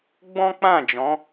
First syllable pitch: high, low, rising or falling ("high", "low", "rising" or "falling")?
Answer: high